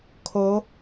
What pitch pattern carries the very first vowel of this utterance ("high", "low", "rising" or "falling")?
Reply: rising